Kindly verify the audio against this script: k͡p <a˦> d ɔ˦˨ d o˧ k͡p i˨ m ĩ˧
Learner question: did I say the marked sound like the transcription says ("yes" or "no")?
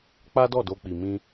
yes